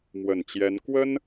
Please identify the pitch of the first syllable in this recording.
low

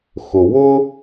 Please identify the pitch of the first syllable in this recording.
low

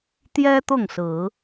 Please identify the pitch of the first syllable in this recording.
high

